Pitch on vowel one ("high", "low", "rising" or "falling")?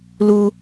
low